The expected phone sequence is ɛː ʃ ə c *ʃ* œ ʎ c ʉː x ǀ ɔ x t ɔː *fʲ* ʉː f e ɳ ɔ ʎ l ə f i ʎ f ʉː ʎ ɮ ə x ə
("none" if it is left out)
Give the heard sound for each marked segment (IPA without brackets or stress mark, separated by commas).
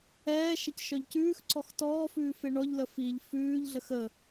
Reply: ʃ, f